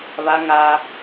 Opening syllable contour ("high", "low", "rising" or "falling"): high